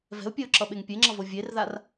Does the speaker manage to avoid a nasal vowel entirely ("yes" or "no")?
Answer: yes